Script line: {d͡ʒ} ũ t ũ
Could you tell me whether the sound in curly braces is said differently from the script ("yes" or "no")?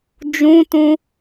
no